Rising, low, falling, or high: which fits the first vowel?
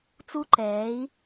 high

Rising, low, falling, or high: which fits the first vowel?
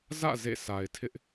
falling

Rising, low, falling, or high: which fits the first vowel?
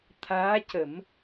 rising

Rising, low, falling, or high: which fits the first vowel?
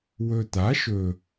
low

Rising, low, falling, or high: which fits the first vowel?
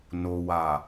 low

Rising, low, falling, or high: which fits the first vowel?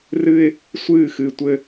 high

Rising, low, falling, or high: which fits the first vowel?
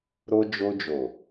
high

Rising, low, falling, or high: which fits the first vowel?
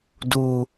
high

